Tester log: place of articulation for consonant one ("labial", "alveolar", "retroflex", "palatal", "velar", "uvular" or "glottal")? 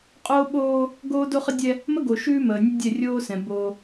uvular